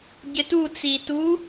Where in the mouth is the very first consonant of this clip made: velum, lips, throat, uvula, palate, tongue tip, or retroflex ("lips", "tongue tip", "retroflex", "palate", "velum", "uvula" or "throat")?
palate